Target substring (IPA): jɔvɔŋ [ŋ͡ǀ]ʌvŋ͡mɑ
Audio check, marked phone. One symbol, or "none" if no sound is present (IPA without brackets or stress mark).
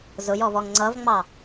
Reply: ŋ͡ǀ